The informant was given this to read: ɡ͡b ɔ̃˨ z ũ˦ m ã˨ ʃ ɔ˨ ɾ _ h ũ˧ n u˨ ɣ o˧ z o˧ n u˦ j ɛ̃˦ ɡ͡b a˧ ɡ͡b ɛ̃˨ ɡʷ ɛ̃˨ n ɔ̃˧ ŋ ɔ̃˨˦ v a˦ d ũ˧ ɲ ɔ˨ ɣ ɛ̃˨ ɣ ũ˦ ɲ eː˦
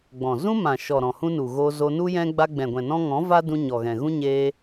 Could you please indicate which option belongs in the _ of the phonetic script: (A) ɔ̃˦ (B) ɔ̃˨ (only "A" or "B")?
B